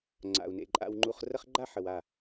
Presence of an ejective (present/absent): present